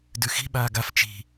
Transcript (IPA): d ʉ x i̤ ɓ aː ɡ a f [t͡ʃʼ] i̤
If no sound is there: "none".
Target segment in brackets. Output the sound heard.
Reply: t͡ʃ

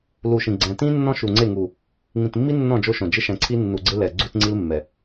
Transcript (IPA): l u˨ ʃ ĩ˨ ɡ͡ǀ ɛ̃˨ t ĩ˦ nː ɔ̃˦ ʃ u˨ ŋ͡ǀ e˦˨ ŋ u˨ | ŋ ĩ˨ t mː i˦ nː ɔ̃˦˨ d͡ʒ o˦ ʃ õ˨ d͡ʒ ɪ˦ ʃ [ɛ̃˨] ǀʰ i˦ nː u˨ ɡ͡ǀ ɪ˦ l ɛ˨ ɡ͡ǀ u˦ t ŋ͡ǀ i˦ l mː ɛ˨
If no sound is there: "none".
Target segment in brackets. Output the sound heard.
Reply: ɛ̃˨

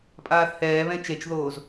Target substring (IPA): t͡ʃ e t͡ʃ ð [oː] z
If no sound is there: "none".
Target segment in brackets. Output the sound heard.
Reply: oː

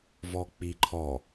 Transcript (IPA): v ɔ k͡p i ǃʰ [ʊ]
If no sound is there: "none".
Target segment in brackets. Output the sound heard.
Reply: ɔ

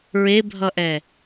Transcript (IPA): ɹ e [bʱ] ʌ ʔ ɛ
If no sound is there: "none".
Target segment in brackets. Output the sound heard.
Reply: bʱ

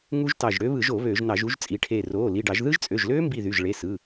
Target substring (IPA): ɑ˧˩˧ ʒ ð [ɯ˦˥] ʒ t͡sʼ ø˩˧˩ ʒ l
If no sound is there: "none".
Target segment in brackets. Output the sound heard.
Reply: ɯ˦˥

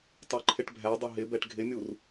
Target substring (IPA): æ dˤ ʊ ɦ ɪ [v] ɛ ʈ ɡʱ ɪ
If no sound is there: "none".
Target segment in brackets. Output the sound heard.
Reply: b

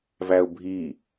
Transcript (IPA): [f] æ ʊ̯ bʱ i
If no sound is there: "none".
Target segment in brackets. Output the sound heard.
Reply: v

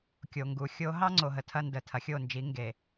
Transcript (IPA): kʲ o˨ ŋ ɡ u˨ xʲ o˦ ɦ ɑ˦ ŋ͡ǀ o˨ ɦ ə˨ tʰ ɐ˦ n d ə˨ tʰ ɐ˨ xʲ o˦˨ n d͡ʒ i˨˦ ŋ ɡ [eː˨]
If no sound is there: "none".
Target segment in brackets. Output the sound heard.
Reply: e˨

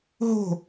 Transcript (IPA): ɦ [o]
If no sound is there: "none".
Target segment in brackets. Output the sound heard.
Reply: o̤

